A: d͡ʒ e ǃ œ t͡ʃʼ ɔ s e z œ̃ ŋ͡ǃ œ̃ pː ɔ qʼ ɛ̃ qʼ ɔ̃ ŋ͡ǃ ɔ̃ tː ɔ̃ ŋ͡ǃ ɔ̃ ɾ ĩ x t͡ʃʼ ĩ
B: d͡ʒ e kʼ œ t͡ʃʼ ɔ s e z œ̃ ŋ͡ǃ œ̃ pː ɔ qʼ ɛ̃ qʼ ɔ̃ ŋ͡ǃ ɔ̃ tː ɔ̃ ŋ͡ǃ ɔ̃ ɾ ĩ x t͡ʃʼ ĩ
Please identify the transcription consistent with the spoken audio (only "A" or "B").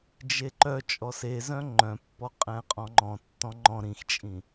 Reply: A